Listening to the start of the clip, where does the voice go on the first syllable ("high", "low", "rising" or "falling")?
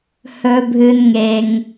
low